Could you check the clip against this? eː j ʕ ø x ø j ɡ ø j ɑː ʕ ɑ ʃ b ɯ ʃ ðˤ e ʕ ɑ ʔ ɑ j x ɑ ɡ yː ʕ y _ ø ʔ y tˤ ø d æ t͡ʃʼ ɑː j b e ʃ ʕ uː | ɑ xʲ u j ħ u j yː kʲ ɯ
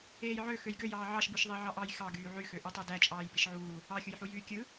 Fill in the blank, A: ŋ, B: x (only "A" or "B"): B